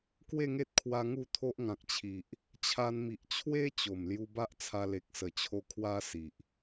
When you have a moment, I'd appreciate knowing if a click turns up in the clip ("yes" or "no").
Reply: no